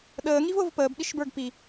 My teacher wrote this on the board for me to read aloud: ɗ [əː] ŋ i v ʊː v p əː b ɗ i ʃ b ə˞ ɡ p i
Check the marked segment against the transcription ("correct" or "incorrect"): correct